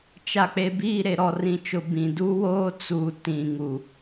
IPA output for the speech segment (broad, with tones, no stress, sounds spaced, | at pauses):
t͡ʃ a˨ k͡p e˨ b iː˦˨ ɾ e˨ ɾ ɔ˨ r ĩ˨ t͡ʃ ʊ˨ b ĩ˨ d u˦ w oː˦ t͡s uː˨ t ĩ˨ ŋ u˨